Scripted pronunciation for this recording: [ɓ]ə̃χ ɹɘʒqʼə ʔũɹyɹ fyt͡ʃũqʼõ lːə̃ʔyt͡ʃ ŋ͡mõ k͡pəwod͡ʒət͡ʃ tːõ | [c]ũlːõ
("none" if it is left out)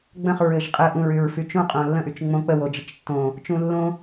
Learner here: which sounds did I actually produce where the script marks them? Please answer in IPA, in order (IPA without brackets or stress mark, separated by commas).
ɡ͡b, t͡ʃ